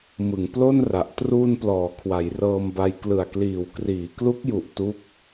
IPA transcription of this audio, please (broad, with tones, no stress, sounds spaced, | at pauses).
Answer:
m ɯ˩˦ ŋ p l o˥˩ n r a˨˩ ʔ t r uː˧ n p l ɔː˩˦ kʰ w a˩˦ j r ɤː˧ m b a˧ j k l ɯ˨˩ a̯ k l iː˨˩ w k r iː˩˦ k l u˦˥ k̚ j u˨˩ ʔ t u˦˥ k̚